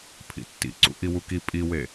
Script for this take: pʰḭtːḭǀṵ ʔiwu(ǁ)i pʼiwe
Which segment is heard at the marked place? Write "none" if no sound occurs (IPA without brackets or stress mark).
k